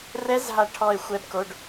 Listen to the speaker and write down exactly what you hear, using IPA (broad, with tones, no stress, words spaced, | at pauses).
rɛ˦˥z ɦa˦˨ ʈʰɔ˦˨e̯xʷɛ˦˥bko˧˥˧ɖ